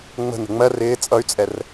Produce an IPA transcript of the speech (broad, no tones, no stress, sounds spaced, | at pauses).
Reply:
ŋ͡m ə̤ n ə̤ ŋ͡m ɜ r ɪː t͡sʼ ʌ y̯ t͡sʼ ɛ r